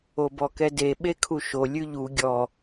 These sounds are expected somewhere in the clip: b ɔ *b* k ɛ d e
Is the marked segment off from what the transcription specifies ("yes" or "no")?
yes